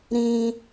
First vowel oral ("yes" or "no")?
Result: no